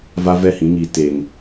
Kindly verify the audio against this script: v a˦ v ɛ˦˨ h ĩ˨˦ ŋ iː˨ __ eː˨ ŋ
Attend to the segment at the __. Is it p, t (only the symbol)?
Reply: t